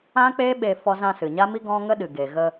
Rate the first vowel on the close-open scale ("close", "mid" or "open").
open